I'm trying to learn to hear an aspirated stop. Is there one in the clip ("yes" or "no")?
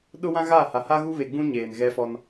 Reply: no